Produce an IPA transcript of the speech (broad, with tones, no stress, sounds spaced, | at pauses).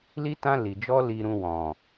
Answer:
l i˦ t ã˦ l i˧ d͡ʒ ɔ˦ l i˧ ɾ ũ˧ w ɔ̃˨